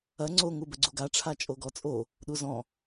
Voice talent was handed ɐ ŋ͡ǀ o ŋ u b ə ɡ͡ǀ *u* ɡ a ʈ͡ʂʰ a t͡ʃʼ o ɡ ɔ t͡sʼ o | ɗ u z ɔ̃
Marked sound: correct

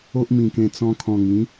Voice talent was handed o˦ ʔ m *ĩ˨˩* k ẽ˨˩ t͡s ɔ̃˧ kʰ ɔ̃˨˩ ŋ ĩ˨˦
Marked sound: correct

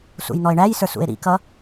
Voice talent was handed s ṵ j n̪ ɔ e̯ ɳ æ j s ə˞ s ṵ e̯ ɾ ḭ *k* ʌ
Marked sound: correct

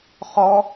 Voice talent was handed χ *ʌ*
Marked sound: incorrect: ɔ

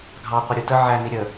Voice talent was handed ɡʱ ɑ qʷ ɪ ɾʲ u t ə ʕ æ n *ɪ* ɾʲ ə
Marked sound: incorrect: i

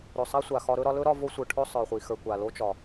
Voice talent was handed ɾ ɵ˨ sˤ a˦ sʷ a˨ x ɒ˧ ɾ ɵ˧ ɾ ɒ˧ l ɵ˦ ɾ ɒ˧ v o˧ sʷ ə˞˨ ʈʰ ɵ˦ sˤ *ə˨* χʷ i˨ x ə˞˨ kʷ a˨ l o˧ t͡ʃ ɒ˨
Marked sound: incorrect: ə˞˨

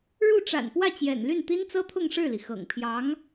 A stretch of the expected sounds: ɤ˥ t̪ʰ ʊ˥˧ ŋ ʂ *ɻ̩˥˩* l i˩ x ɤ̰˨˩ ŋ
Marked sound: correct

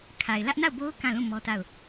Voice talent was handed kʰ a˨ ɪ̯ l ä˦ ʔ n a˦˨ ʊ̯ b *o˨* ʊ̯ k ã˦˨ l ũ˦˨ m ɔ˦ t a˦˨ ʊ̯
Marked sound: incorrect: o˦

